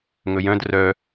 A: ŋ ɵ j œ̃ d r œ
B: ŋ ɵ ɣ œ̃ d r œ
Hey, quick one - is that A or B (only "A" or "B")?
A